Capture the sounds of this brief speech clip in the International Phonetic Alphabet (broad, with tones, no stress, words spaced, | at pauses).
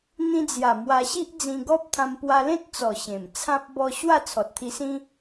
n̪ĩ˧d͡zja˨˩ mwa˧ɕi˦ʔ d͡zĩ˧ɡɔ˦p̚t̪ʰã˧m pwa˧lẽ˦t̚t͡sɔ˨˩ ɕẽ˨˩mt͡sʰã˦p̚ bɔ˧ ɕwa˥˧t͡sʰɔ˨t̚t̪ʰi˧sĩ˦